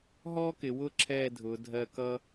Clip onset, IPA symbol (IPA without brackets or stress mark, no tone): ɦ